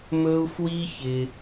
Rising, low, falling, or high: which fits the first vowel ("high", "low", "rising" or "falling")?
high